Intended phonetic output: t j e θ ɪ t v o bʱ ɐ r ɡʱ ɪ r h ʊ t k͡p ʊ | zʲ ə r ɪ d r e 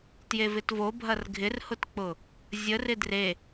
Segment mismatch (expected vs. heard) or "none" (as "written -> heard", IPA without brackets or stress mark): θ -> v